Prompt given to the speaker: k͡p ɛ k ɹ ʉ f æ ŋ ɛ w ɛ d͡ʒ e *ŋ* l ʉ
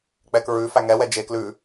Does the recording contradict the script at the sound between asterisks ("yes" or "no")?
yes